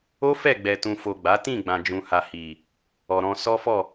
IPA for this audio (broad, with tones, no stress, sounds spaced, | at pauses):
o˦ f ɛ˦˨ ɡ͡b ɛ˨ t ũ˨ f o˨ ɡ͡b a˨˦ t ĩ˦˨ ɡ͡b ã˨ d͡ʒ ũ˨ h a˨ h i˨ | ɔ˨ ɾ ɔ̃˧ s ɔ˦ f ɔ˦˨